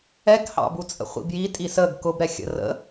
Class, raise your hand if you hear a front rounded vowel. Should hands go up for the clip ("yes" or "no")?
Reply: no